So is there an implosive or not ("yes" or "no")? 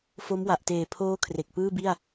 no